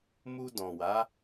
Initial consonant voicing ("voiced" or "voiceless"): voiced